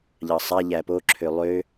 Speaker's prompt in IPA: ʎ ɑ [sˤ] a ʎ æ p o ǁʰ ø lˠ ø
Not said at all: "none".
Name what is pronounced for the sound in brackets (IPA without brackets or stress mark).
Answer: sˤ